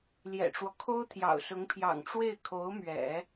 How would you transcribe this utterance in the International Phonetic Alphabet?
l j ɛ̰˨˩ ʈ͡ʂ w ɔ˦ kʰ o˥ ʊ̯ t̪ʰ j ɑ̰˨˩ ʊ̯ s ʊ˧˥ ŋ pʰ j ɑ̰˨˩ ŋ ʈ͡ʂ w e˥˩ ɪ̯ kʰ o˧˥ ʊ̯ m ɥ ɛ̰˨˩˦

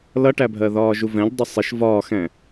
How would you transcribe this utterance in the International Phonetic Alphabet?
l ʌ ʈ æ bʱ ɜ ð ɒː ʒ u v ɛ̃ ʎ dˤ ʊ sˤ ɪ ʃ v ɒː x ɛ̃

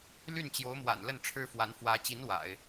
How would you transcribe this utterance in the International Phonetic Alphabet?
l y˥˩ n t͡ɕ j o˧˥ ʊ̯ m w a̰˨˩ n l ə˥˩ n ʈ͡ʂʰ ɻ̩˥ f w a˧˥ n f w ä˧˥ t͡ɕ i˧˥ n w a̰˨˩˦ ɪ̯

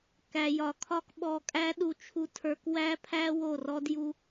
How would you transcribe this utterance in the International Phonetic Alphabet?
k æ˨ j ɒ˨ kʰ ɒ˦ k ɓ ɔ˧ kʼ æ˦ ɗ u˧ t͡ʃʰ u˦ tʰ ə˞˦ k w æ˦ pʰ æ˦ w o˦˨ r ɔ˦ d j u˦

